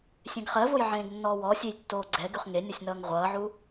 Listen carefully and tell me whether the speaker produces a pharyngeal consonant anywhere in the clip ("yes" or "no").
yes